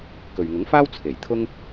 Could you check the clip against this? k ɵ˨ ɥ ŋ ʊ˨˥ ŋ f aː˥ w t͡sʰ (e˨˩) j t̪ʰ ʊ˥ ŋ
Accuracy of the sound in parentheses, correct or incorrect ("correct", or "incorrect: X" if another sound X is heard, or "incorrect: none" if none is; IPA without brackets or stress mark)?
correct